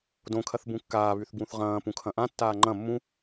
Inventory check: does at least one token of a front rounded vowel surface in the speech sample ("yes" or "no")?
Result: yes